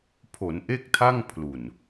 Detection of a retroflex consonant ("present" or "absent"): absent